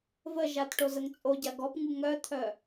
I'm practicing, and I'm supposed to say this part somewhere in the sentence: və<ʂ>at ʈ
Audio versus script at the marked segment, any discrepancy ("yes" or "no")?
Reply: yes